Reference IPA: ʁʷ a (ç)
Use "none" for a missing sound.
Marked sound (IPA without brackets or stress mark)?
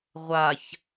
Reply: ç